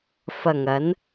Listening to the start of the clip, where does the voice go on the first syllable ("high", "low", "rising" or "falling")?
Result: low